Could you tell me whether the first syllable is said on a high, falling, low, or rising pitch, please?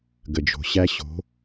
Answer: low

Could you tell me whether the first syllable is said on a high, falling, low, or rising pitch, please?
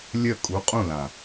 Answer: falling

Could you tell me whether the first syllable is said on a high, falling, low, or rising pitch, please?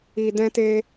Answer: low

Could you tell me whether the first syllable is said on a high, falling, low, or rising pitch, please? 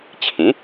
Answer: rising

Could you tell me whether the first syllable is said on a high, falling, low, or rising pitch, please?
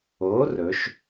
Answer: rising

